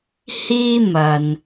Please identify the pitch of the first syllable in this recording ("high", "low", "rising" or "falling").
high